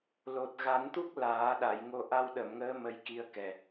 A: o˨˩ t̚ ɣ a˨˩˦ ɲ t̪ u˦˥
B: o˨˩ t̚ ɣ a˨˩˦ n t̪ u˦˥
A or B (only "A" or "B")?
B